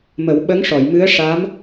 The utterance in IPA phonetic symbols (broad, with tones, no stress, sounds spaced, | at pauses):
m ə˨˩˦ w ɓ ə˧˥ ŋ ʂ ɔ˨˩˨ j m ɨ˧˥ ə̯ ʂ a˧˥ m